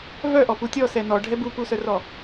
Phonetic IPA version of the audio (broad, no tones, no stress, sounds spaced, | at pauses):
v œ ʔ ɔ p u tʲ ɔ s ɛ n ɔ ɖʱ ɛ b u p u s œ r ɔ